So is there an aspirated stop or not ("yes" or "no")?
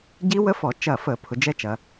yes